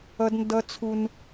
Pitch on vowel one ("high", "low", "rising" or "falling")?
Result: high